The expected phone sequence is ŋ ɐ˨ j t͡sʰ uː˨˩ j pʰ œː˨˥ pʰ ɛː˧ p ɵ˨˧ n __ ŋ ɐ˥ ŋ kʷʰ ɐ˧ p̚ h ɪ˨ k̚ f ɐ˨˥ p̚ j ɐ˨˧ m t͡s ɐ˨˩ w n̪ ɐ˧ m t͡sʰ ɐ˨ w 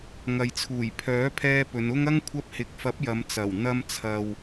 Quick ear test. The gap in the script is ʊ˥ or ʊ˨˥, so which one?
ʊ˥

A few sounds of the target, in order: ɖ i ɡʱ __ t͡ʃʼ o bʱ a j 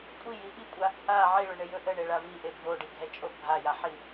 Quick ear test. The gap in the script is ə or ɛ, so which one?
ɛ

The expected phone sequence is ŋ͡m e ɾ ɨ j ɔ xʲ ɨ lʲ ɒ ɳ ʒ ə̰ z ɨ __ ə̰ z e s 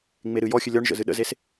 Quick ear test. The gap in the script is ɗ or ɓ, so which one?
ɗ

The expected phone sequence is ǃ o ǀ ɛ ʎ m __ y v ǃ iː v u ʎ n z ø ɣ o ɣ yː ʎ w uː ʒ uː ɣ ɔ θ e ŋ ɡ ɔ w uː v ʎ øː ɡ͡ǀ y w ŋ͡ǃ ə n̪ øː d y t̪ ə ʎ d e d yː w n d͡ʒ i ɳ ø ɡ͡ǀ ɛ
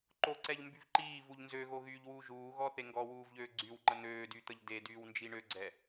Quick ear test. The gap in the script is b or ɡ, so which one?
b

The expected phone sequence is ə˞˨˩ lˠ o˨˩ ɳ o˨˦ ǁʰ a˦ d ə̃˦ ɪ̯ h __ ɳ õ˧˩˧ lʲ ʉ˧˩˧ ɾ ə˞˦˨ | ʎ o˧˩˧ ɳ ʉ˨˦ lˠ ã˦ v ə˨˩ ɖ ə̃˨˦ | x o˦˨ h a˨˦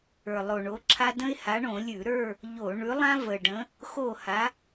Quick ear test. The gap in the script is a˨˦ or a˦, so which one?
a˨˦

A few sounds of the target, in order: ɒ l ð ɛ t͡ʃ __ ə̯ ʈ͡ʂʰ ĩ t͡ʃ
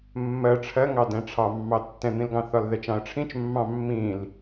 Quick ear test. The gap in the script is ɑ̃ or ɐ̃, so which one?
ɑ̃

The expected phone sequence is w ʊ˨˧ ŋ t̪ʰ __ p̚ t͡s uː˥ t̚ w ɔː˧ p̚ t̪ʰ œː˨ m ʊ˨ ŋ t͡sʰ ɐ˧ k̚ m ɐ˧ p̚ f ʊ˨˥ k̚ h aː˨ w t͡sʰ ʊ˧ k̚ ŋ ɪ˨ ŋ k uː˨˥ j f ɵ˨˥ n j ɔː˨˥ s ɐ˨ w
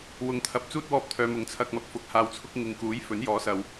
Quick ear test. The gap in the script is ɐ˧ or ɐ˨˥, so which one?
ɐ˨˥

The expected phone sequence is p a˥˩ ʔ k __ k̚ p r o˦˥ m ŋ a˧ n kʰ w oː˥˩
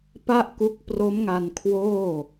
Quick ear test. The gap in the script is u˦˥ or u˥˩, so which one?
u˦˥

